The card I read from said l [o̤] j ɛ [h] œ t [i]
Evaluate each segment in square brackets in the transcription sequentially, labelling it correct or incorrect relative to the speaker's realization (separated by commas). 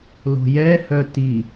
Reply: correct, correct, correct